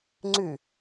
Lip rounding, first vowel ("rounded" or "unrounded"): rounded